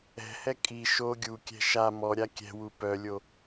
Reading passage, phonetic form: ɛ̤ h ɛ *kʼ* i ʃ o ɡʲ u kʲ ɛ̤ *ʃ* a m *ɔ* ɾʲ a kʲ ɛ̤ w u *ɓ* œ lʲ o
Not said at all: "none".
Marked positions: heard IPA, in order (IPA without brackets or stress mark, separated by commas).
kʼ, ʃ, ɔ, p